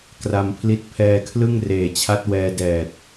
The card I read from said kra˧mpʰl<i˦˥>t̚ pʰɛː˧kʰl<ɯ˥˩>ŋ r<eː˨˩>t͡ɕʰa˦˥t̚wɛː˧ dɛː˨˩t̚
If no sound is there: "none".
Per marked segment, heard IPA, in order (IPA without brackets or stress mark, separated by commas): i˦˥, ɯ˥˩, eː˨˩